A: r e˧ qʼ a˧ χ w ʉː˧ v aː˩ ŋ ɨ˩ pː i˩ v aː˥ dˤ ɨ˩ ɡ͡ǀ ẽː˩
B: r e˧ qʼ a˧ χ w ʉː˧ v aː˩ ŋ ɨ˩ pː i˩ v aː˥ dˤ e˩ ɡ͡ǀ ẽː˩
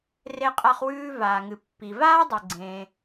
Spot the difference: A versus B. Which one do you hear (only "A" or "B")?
B